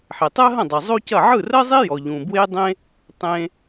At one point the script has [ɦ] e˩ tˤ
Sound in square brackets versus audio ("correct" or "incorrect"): incorrect